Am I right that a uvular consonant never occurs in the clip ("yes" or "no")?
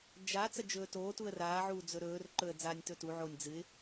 yes